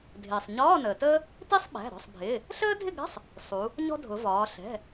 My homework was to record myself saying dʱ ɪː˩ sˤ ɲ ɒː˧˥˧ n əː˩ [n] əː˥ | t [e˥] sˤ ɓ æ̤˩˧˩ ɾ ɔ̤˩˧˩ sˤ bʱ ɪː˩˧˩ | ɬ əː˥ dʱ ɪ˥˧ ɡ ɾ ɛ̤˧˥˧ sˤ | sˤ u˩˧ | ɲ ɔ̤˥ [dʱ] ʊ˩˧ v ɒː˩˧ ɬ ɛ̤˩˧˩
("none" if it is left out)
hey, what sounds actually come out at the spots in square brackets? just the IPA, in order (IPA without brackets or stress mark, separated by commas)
t, i˥, dʱ